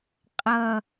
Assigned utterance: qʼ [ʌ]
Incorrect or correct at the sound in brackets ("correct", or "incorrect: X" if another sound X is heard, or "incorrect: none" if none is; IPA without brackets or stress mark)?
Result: correct